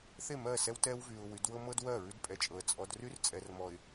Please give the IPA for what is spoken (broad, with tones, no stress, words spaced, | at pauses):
θe˦˨mɜ˦˨sɛ˦w tɛ˦wvy˨ʊ̯ wy˨˦dwɤ˦mɤ˦dwɜ˦˨ ɹʉ˦dpʼɛ˨t͡ʃʼɤ˨ə̯ t͡sʼɔ˨dry˦r t͡sʼɛ˨rmɔ˨ɪ̯